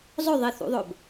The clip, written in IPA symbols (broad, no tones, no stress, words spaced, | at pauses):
zˤɵðˤiθṵðˤɵb